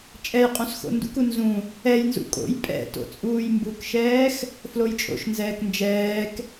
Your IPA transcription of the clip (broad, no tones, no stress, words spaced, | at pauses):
t͡ʃʼɛjqʼũs xo̰ndṵku nzũ | ɛjnzṵ kʼo̰j pʼɛ̰to̰ t͡sʼuːjmbukʃɛːx | flojt͡ʃʼo̰ʃnzɛːk nd͡ʒɛːk